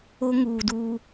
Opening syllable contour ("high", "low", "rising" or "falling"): high